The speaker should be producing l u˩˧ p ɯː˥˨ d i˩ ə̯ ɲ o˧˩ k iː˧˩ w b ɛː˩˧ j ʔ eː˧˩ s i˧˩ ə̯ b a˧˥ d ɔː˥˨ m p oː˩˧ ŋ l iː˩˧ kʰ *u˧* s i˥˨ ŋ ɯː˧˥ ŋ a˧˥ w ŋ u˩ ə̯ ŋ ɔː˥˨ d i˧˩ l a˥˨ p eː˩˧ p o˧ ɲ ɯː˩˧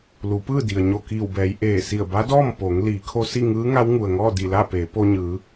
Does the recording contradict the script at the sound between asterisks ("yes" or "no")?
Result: yes